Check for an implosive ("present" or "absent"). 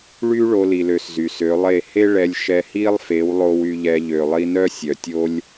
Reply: absent